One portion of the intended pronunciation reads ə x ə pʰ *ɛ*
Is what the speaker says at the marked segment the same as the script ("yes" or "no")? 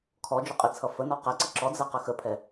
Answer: yes